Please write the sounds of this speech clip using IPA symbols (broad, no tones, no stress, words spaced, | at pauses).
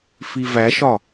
fivæʃɒ